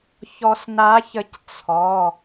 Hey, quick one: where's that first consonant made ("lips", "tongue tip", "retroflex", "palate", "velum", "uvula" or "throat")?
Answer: palate